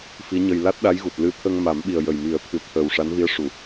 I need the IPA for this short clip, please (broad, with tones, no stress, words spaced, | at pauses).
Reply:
fi˧˥ɲə˧j la˦˥t̚ɗa˧˥jɣu˨˩t̚lɨ˧˥ t̪ʰə˧ŋma˨˩˦mɓi˨˩ə̯ jə˨˩jmi˨˩˦ə̯ t̪ʰɨ˨˩˦ t̪ʰəː˨˩wʂa˧˥nvi˧˥ə̯ʂu˨˩˨